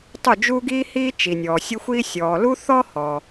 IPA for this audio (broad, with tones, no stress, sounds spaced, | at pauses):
tˤ u˥˨ d͡ʒ uː˥ ɡ iː˥ h iː˥ t͡ʃ i˨ nʲ ɔː˨ sʲ ə˥ xʷ iː˥ sʲ ɔː˨ l u˥ θ ɔ˥ h ɔ˨